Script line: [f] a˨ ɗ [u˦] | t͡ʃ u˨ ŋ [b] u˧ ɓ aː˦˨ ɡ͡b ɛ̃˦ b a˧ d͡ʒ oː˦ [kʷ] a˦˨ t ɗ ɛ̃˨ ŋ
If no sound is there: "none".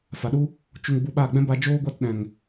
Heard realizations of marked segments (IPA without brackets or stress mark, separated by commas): f, u˦, b, ɡʷ